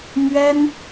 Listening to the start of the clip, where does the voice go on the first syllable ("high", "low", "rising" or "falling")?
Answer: high